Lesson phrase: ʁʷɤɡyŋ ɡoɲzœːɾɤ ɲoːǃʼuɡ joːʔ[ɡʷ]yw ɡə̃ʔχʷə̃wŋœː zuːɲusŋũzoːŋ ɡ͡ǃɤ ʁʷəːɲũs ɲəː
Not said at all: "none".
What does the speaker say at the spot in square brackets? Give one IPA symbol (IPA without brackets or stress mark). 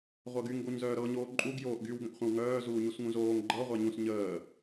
ɡ